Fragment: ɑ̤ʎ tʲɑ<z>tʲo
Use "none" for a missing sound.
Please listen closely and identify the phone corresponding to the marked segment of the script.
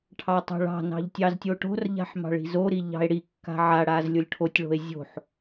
z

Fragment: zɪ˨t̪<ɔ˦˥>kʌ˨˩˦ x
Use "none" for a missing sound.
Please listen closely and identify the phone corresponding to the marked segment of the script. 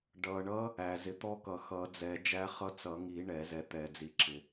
ɔ˦˥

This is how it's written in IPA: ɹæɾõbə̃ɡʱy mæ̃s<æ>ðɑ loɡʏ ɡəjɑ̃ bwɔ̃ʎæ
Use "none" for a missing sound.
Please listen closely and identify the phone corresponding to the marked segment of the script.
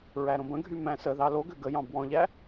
ə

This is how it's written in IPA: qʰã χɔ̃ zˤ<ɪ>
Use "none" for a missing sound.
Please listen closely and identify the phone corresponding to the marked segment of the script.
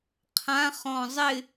ɪ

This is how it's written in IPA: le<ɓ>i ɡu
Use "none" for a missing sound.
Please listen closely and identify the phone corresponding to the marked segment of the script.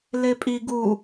pʼ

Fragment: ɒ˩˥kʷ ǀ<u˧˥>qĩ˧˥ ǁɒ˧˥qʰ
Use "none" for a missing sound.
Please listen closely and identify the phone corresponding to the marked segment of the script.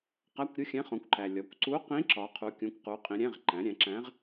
u˧˥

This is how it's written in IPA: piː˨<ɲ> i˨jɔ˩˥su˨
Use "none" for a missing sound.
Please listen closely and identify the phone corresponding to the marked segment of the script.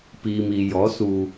m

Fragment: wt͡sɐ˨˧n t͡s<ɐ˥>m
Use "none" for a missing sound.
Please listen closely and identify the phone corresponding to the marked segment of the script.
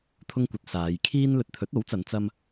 ɐ˥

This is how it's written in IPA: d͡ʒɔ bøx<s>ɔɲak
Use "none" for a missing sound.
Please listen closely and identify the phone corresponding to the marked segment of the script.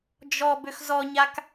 z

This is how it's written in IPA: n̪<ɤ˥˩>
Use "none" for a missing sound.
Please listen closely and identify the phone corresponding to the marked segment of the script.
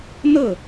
ɤ˥˩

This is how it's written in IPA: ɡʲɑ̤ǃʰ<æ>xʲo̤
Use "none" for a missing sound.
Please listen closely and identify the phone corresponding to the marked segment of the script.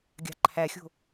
æ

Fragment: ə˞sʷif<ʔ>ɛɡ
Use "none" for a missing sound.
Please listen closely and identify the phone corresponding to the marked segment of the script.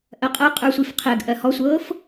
qʰ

